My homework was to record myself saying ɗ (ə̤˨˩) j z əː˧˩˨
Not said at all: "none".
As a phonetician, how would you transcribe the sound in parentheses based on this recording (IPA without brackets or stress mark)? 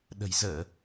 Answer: ə̤˨˩